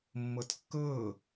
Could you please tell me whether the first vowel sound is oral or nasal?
oral